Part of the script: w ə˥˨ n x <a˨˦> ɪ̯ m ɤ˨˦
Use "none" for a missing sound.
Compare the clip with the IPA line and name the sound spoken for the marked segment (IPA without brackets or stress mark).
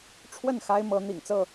a˦